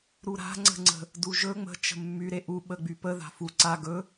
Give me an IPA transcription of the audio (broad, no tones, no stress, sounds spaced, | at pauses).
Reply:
ɾ u ɾ a̤ ŋ͡ǀ ə̤ ŋ͡ǀ ə̤ | d u ʒ ɵ ŋ͡m ə̤ t͡ʃ ə̤ mː y ɾ e ʔ u ɓ ə ɡ͡b y p ə ð a̤ f u ǀ a ɡ ɵ